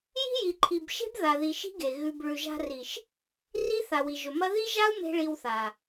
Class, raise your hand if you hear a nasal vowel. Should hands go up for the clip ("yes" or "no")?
no